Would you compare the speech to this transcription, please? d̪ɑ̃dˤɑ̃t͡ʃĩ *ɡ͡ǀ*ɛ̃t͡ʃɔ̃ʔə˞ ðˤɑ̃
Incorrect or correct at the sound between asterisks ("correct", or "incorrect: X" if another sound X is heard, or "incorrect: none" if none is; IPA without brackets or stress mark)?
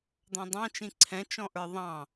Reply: incorrect: ǀʰ